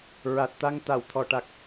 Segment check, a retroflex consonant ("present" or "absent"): present